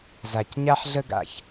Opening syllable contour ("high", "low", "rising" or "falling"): low